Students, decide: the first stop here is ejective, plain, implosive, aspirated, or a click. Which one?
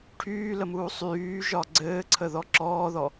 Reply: aspirated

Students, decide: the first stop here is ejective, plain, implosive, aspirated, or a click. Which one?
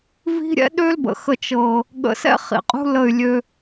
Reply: implosive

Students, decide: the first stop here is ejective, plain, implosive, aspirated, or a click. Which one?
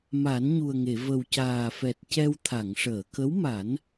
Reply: plain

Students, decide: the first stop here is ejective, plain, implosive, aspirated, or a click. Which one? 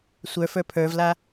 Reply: aspirated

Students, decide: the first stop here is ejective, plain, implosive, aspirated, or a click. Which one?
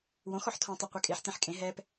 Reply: aspirated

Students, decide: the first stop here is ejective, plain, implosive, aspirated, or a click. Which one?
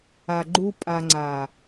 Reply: click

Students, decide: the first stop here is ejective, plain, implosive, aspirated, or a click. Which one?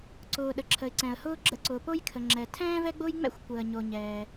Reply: click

